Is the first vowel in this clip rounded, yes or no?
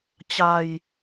no